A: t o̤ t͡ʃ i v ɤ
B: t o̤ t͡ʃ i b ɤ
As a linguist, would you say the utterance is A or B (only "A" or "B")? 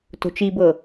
B